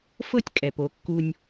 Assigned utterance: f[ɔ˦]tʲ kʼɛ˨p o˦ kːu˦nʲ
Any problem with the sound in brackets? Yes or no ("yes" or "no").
yes